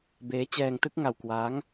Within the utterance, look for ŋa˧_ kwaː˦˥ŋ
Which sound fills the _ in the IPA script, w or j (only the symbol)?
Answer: w